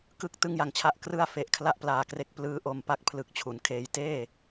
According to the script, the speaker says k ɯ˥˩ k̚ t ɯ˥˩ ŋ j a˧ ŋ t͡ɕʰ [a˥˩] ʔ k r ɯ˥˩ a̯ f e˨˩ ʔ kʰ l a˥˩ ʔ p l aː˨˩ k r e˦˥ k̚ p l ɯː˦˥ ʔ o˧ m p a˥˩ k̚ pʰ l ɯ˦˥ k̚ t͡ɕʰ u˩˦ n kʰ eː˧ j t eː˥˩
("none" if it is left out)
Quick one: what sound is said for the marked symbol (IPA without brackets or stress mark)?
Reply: a˥˩